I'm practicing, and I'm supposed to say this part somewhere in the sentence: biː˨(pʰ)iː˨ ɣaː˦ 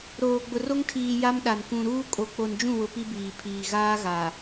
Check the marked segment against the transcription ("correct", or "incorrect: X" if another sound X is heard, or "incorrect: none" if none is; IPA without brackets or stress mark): correct